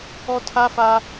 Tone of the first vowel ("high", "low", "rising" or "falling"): high